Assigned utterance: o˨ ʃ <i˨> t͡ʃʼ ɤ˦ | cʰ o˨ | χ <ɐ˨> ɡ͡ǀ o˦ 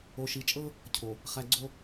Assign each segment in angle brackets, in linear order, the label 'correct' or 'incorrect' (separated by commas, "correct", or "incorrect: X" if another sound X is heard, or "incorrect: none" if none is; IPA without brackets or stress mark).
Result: correct, incorrect: æ˨